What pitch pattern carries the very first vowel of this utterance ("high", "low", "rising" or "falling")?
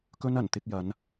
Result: high